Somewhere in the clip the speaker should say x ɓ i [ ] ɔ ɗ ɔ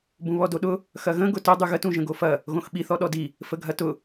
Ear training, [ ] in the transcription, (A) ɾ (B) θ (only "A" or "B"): B